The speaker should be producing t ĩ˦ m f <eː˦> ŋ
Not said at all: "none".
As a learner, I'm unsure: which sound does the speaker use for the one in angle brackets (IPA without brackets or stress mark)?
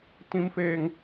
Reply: eː˦